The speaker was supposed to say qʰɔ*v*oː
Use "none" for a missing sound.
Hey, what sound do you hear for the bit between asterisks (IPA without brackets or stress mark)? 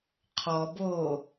b